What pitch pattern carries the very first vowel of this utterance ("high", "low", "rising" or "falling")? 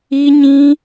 high